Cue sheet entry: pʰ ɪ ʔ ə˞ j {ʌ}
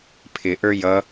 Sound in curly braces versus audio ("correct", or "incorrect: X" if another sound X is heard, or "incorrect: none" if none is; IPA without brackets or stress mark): correct